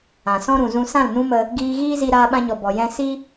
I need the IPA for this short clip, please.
ã˨ sɔ̃˦ɾũ˨zũ˧ sã˦˨lnũ˦mə˧ | ɡiː˧ɣiː˦zi˧ ɾaː˧ɓã˧ɲɔ˨ bɔ˨ jɛ̃˧si˦

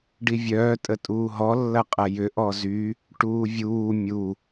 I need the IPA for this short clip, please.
ɖivʲœː tʼətʼuːɦɔ lːɐqʼɐjʏ ʔɔzy | ʈuːvʲuː mʲu

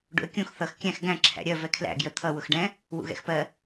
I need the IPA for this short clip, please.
ɖṵə̯kʲũx θʌx kʲæ̃x ɡæ̃ ǁʰæ̰ɾʲɜ vɛkʰlæ̰ ɡjə t̪ʰʌ wʊxɖɛ̃ | wṵɣɛ̰xpɜ

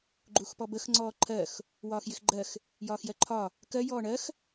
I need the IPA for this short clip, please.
ɡ͡ǃuxpɔbəx ŋ͡ǀɔːǃʰɜx | wɒːxjɪxɡ͡ǃɜx | jɒːxjɜǃʰɒ | kɜ jɔːɳɜx

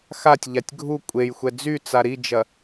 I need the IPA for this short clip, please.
xatʲʎatʲ ɡʱu kʷʼejxʷɛ d͡zyt͡sa ɾid͡ʒɐ

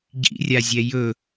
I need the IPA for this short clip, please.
ɟḭrʲazʲɛ jɵ

